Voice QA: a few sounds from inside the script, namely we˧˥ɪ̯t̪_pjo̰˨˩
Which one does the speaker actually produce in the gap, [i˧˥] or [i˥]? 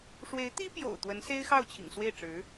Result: i˥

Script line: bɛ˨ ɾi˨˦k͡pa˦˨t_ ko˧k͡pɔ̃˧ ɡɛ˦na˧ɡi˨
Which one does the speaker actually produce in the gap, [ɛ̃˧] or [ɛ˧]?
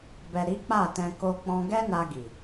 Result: ɛ̃˧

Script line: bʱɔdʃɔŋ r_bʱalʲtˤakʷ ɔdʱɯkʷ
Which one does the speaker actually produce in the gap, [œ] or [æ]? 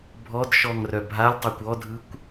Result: œ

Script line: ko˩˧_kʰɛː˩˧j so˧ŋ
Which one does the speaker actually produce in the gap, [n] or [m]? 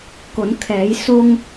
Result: n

